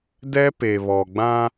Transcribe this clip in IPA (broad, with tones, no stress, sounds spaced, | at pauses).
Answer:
d ɛ˦ p e˨ β ɔ˨ ɡ͡b ã˦